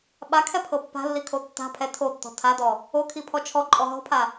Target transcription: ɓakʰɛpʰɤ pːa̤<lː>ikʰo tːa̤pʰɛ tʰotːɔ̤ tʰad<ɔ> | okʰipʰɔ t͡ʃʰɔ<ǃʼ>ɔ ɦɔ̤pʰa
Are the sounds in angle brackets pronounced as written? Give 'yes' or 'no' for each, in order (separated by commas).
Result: yes, yes, yes